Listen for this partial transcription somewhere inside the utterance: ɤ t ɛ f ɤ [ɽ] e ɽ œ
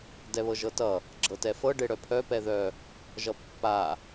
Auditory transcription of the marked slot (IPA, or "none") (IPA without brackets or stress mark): ɖ